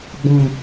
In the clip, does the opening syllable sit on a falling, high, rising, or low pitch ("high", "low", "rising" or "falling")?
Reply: low